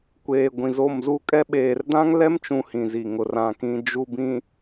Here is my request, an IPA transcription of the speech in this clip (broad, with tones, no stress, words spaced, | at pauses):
kʷeː˨ ɡʷĩ˨zo˦˨mzu˦kʼɛ˦ ɓeː˨rdã˦ŋlɛ˦mt͡ʃũ˨ hĩ˨zi˨ŋʊ˨ rã˨kĩ˨ d͡ʒu˨bĩ˨